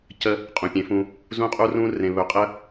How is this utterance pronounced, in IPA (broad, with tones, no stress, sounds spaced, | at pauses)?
c ə˦ | qʼ ũ˨ pʲ ẽ˨˦ f ũ˧ | z ũ˦ qʼ u˦ r ũ˦ r ẽ˨ β ɵ˨ qʼ ə˧